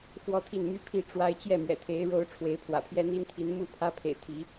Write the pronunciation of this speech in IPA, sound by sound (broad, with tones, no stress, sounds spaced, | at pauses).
x w ɔ˦ t̪ʰ i˥˨ n m y˦ pʰ i˥˨ ʈ͡ʂ w a˦ ɪ̯ t͡ɕ j ɛ˥˨ m ɥ ɛ̰˨˩ t̪ʰ e˨˦ ɪ̯ ɻ o˨˦ ʊ̯ ʈ͡ʂʰ w e˨˦ ɪ̯ pʰ w ä̰˨˩ pʰ j ɛ˦ n̪ i˦ n t̪ʰ i˨˦ n m u˥˨ pʰ ä˦ pʰ ḛ˨˩ ɪ̯ t̪ʰ i˨˦